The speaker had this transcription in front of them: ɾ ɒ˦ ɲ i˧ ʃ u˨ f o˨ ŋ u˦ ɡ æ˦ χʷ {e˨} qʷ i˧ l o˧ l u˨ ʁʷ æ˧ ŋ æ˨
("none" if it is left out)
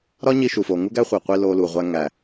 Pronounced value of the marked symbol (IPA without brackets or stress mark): e˨